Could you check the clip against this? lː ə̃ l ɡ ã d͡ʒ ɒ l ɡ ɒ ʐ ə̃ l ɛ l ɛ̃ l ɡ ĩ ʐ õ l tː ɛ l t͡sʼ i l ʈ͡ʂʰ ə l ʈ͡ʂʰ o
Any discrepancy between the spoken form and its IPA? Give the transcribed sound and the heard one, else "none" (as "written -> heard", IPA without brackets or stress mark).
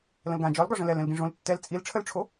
lː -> l